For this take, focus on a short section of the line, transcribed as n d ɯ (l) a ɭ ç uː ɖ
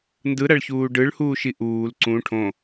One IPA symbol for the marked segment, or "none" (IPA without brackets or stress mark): ɾ